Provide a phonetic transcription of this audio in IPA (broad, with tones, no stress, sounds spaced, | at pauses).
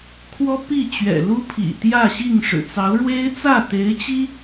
kʰ w ɔ˥ p i˥˩ t͡ɕ ɥ ɛ̰˨˩ l u˥ pʰ ḭ˨˩ t̪ j ä˥˧ ɕ i˥˩ ŋ ʂ ɻ̩˨˩ t͡s ɑ˧˥ ʊ̯ ɻ w e˥ ɪ̯ t͡s ä˥˩ t̪ e˧˥ ɪ̯ t͡ɕ i˥